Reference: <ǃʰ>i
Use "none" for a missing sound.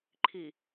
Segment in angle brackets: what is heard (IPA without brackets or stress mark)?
ǃʰ